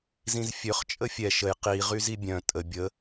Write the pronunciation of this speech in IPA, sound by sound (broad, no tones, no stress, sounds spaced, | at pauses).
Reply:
z ĩ z fʲ ø χ t͡ʃʼ ə fʲ ɛ ʃ ə j q i ʁ y z i bʲ œ̃ tʼ ə bʲ ə